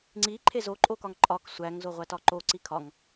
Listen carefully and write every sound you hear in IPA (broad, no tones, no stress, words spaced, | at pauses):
ŋ͡ǀi ǃʰezoǃʼokɒŋ ǃʼɒk sʷæŋ zoʁʷætɒǃo ǀikʰɒŋ